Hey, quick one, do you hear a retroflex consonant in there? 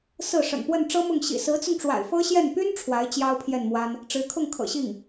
yes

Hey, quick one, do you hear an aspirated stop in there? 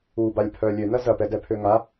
yes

